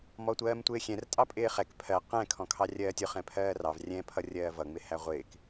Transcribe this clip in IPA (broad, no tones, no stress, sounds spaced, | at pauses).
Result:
m ɔ tʷ ɜː m tʷ ɪː xʲ ɛ̃ r tʼ ɑ pʼ ɪː χ ɛ k pʰ ɜ q ɛ̃ kʰ ɔ̃ kʰ ɑ rʲ ɜː tʲ ʊ χ ɛ̃ pʰ ɜː r ɑ v rʲ ɛ̃ pʰ ʌ rʲ ɜː v ʌ ŋ͡m ɪ h æ ʁʷ ɪː k